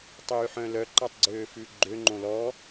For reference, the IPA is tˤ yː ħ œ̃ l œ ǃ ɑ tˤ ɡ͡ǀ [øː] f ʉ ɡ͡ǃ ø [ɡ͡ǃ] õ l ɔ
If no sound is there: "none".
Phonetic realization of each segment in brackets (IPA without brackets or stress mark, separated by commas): øː, ŋ͡ǃ